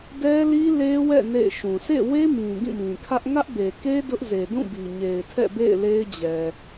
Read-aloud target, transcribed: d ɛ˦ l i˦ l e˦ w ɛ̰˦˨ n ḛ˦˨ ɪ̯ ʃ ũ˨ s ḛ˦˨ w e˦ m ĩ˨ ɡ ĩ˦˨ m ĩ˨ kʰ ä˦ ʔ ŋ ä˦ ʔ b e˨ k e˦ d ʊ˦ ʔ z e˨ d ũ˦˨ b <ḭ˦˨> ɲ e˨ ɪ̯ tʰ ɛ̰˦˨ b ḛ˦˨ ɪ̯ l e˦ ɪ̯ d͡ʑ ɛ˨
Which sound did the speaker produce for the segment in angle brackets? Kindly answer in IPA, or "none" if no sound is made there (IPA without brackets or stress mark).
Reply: i˨